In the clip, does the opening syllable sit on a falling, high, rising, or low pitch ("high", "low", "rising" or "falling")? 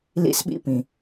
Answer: high